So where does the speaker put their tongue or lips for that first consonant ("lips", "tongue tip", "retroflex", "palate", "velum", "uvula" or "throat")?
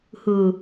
throat